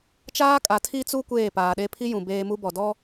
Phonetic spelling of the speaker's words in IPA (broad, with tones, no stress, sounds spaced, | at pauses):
t͡ʃ aː˦ kʼ a˨ tʰ i˦ t͡s u˦ kʷ eː˦˨ p aː˨ ɗ e˦ pʰ i˦ j ũ˨ b eː˦ m u˦ b ɔ˨ d ɔ˦